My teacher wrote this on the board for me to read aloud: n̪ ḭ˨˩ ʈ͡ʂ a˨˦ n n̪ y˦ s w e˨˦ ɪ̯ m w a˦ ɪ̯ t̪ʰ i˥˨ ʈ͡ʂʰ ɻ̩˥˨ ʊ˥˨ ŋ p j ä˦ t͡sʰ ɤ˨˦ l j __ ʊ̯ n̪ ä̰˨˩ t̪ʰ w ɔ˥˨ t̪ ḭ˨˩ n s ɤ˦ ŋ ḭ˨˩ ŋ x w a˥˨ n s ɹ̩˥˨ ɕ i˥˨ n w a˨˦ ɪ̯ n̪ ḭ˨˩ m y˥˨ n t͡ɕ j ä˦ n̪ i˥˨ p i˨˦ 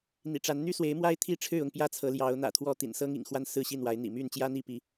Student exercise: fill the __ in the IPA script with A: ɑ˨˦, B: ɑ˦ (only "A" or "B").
A